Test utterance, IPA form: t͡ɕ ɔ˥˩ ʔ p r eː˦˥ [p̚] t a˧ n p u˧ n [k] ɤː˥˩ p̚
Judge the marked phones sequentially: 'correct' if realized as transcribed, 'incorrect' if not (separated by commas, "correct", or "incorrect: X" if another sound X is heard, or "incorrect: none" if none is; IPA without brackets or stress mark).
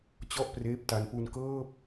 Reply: correct, correct